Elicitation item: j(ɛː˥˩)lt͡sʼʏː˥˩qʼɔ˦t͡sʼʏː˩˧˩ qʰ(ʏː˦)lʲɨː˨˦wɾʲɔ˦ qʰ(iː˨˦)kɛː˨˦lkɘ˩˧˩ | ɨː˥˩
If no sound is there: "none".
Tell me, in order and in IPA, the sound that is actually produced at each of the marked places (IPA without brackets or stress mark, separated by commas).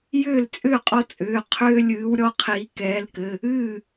ʏː˥˩, ʏː˦, iː˨˦